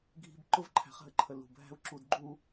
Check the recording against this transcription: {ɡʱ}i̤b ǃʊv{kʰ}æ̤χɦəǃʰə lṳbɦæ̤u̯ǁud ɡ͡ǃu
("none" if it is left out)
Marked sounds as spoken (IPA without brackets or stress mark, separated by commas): ɡʱ, ǃʰ